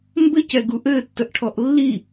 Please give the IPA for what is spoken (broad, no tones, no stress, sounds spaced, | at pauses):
m b ɘ c ɛ ɡ u ʔ ɘː tː ə ʔ ʈʰ ɔ ʔ lː i